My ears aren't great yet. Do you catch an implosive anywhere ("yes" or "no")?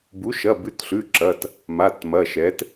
no